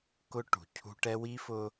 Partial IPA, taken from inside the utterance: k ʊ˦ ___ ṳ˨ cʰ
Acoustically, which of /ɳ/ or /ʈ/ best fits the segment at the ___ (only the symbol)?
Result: ʈ